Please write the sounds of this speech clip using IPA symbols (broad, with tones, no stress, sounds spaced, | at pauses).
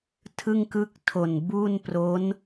tʰ ɯ˥˩ ŋ k ɯ˥˩ k̚ tʰ o˨˩ n b u˥˩ n p r o˦˥ n